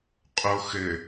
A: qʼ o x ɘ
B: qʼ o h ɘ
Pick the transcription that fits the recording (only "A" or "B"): A